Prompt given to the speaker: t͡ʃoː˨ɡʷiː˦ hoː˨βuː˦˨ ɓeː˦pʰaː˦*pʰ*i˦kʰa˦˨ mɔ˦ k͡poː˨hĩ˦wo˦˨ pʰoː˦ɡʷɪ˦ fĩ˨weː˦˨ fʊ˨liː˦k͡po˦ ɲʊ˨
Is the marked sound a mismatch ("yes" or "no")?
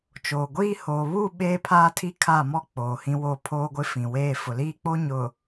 yes